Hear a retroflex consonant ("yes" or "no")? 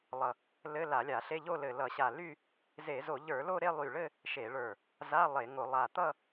yes